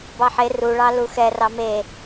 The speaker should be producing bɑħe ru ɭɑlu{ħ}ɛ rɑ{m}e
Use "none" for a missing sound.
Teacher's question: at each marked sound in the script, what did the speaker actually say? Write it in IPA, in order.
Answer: x, m

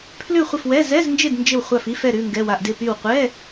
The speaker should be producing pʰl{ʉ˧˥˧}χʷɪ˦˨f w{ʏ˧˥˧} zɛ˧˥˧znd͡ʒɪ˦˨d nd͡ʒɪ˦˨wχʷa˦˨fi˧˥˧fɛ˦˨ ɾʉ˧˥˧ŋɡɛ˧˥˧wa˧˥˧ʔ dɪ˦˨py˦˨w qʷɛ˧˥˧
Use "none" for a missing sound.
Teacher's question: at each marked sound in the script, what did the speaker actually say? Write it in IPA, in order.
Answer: ʉ˦˨, ɛ˧˥˧

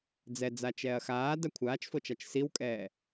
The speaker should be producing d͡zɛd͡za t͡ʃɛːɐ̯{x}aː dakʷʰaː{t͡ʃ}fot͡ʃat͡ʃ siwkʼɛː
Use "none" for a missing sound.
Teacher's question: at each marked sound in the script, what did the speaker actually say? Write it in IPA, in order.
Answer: x, t͡ʃ

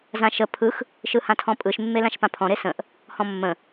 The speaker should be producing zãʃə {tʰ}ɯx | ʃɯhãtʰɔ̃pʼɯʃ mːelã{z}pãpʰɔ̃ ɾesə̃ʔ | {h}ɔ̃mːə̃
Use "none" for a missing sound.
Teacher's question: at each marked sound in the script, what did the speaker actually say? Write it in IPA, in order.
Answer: pʰ, ʃ, h

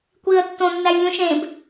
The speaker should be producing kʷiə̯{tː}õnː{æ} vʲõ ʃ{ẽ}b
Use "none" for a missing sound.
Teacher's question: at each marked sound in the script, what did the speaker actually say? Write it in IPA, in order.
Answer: tː, æ, ẽ

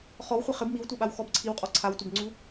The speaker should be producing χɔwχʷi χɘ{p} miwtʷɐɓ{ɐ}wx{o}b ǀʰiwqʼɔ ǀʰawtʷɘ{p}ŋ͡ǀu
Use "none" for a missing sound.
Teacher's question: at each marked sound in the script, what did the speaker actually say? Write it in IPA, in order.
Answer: b, a, ɔ, b

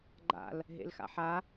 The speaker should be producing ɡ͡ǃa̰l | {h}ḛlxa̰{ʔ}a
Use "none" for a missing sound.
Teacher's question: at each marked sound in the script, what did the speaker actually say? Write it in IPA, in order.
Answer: ɦ, ħ

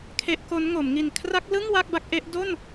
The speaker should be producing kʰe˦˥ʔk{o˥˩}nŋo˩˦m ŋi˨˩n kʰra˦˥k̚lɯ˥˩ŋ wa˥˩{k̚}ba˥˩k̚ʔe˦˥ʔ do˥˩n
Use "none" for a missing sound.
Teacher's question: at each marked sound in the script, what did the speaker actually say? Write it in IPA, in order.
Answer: o˦˥, k̚

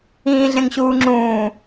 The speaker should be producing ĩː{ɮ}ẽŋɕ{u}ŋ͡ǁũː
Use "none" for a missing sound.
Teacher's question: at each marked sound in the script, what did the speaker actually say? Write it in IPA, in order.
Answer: ɮ, uː

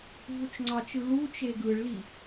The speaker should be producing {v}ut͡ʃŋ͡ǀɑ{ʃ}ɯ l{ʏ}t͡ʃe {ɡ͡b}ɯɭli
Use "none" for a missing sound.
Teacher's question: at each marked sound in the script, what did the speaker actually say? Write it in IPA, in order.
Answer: v, t͡ʃ, u, ɡ

